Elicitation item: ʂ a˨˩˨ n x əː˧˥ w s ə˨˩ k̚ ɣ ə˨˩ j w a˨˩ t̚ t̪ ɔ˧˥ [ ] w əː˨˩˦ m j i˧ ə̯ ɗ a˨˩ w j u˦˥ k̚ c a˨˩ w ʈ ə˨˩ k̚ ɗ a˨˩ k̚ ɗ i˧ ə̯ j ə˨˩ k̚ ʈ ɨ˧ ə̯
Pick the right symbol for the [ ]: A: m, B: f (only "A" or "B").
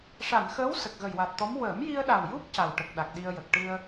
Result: A